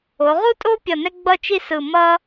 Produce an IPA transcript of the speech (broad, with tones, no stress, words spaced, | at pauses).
o˩˧ʁu˥tʼo˥pʲʌ˧˩ nɛ˥ɡ͡bʌ˥˧t͡ʃi˥sɯ˧˩ mʌ˥